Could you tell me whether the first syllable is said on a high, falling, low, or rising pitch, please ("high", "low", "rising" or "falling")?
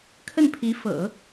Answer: falling